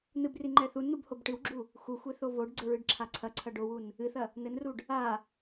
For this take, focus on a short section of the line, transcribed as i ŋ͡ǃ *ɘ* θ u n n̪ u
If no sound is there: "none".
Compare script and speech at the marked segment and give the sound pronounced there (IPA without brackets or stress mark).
ɛ